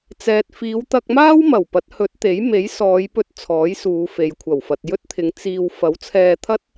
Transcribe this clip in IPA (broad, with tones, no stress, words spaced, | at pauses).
t͡sɛː˨t̚ fiː˨˧wt̪ɐ˧k̚maː˥wmɐ˨˩w pɐ˨˥t̚hɵ˨˥t̚t̪e˨˥jme˨˥j sɔː˨˧jpɵ˧t̚ t͡sʰɔː˨˥jsuː˨˧fe˨j kʷʰɐ˨˩wfɐ˨t̚jɵ˥t̚t̪ʰɪ˨˧ŋ t͡siː˧w fɐ˨˥wt͡sʰɛː˧t̪ʰɐ˥t̚